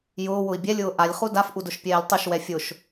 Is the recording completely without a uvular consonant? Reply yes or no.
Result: no